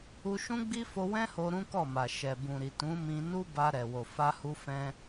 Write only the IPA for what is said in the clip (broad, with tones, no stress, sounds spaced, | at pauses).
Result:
u˧ ʃ ũ˦ ɡ͡b i˦ f o˧ w ɛ̃˦ h o˧ ɾ ũ˦ k ɔ˦˨ m a˨ ʃ ɛ˨ b ũ˨ ɾ i˨ t ũ˨˦ m ĩ˧ n u˦ b a˧ ɾ ɛ˨ w o˨ f a˧ h u˧ f ɛ̃˧